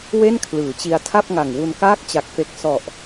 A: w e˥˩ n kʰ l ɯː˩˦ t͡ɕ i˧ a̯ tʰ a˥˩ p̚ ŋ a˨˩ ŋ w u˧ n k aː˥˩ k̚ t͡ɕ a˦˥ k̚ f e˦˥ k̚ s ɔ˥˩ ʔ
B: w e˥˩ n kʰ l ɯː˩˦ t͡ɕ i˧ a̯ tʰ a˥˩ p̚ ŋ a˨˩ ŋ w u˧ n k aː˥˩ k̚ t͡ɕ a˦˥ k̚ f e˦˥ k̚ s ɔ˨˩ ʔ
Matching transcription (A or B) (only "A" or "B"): B